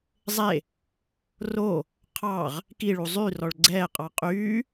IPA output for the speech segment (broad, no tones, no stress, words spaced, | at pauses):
zˤe | ro | qʰɑʁ | kiɭu zˤyrɔɭ ɡ͡ǀɛːqʼɑ qʼyː